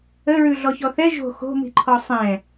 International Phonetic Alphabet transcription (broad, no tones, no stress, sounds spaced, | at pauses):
ə ɹ ʉ ɮ ɔ ç ɔ θ ɛ ʒ o̤ x o̤ m i̤ ǃʰ ɔ sˤ ɛ̃